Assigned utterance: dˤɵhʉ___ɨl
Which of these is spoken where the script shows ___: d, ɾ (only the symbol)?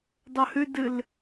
d